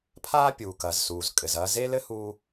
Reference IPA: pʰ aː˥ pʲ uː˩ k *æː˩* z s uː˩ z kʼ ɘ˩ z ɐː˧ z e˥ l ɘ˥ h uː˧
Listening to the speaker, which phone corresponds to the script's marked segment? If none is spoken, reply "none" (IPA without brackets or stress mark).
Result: ɐː˩